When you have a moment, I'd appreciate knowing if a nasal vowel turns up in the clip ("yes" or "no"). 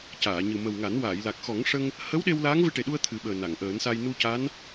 no